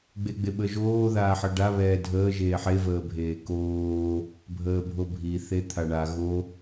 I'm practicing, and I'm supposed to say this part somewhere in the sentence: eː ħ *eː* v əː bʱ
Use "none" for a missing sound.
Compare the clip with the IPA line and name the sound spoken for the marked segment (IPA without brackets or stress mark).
e